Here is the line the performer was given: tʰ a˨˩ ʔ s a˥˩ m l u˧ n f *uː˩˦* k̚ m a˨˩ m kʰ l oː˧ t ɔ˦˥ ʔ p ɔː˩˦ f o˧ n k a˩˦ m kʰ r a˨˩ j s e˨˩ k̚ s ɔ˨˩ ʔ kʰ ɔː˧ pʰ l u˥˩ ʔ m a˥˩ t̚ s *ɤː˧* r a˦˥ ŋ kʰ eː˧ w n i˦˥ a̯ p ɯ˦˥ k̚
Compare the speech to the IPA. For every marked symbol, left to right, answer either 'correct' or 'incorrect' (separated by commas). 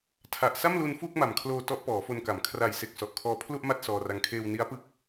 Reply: incorrect, incorrect